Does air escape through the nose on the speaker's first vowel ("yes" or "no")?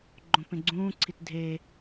yes